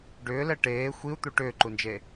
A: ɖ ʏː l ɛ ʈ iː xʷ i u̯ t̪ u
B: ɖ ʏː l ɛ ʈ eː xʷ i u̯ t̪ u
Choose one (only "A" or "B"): B